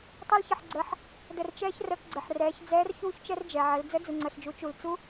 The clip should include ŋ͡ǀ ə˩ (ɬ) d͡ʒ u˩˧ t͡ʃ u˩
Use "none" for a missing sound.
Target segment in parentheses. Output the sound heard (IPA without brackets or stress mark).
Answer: ɬ